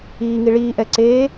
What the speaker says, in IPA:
iː ŋ i ɭ iː ʔ ɛ ǀ eː

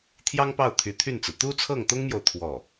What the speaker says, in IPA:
t̪ʰ j ɑ˥ ŋ p ɑ˥˩ ʊ̯ t̪ʰ y˧˥ t̪ʰ y˥˩ n t͡s ɹ̩˩ t̪ u˥ t͡sʰ ɤ˥˩ ŋ t̪ ʊ˥ ŋ m j o˨ ʊ̯ t̪ʰ w ɔ˥˩

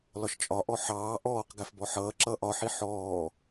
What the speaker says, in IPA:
l ɒ ʃ t͡ʃʼ ɒ ʔ ɔ ħ ɑː ʔ ɔː q ɡ æ f b ɔ ħ ʌː ǁ ʌː ʔ ɒ ħ i ħ ɔː

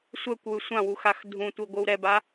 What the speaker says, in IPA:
sʷ ɛ kʷ w ɯ sʷ ã w u x a x dʱ ũ tʷ i ɡʷ ɯ w ɾ ɛ b a

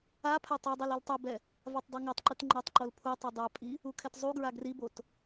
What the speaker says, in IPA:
a pʰ a tˤ a dˤ i l i l tˤ u b ɛ | v a tˤ dˤ u ŋ ɤ tˤ ǃ ɯ t ŋ͡ǃ ɤ tˤ ǃ o l pʰ u tˤ ɯ dˤ a pʼ i | u kʰ ɛ t zˤ u ɡ ɹ a ɡ r i b o t

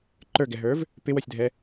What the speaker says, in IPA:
ǃ ə˞ ɡ ɛ ɦ ə˞ v | p ɪ w ɔ sʲ dʱ ɛ

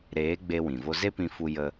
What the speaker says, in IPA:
ɾ eː˨˦ ɡ͡b e˦ w ĩ˨ v o˦ z e˦ p ĩ˧ f u˧ j ə˧

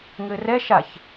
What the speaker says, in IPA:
ŋ ɘː r ɛ ʃ a ç

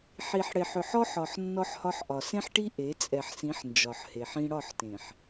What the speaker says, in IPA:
ħ i˨ ħ ɽ e˨ ħ ʏ˨ ħ ɔ˦ ħ ɒ˨ ħ nː ɔ˦ ħ h ɒ˦ ħ ʔ ɒ˨ s ẽ˦ ħ ʈ i˦ ʔ e˨˦ t͡sʼ ɛ˨ ħ s ĩ˨˦ ħ n d͡ʒ ɒ˨ ħ h e˨ ħ ĩ˦ ɽ ɒ˦˨ ħ t ẽ˨ ħ

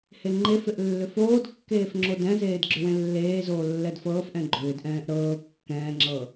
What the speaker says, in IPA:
h e ŋ͡ǃ e f ɪ ʔ lː ʏ f oː d kː eː f ŋ͡ǁ o d ɛ̃ z eː d ɡ͡ǁ ʏ w ẽ lː eː z oː lː ɛ d f ɤː f ʔ ɛ̃ ɡ͡ǃ ʏː d ʔ ɛ̃ː ʔ ɾ ɤː kː ɛ̃ː ŋ͡ǁ ɤ

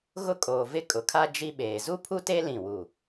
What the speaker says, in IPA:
ɣ ʊ˦ kʼ oː˨ v ɪ˦ kʼ ʊ˨ kʰ a˦ d͡ʒ i˦ ɓ eː˨ z u˦ pʰ u˦ t e˦ l ĩ˦˨ w u˦˨

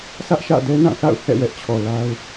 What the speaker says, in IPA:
sʰ ä˦ ʔ ʃ ä̰˦˨ d ɛ˦ n ã˦˨ θ a̰˦˨ ʊ̯ h ɛ̰˦˨ w ɛ˦ ʔ t͡ɕʰ ɔ˨ l a˦ ʊ̯

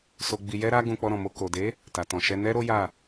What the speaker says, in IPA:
s o˧ ɡ͡b i˧ j ɛ˦ ɾ a˦ ɡ ũ˧ k͡p ɔ˧ ɾ ɔ̃˨ m o˧ k o˨ d e˨˦ | t a˨ t ɔ̃˨ ʃ ɛ˧ n ɛ˦ ɾ o˦ j a˦˨

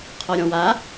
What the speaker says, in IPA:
qʰ ɔ ɾʲ ɔ̃ w a

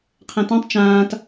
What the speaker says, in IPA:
qʰ ɛ̃ t ɛ̃ tˤ t͡ʃ ãː t

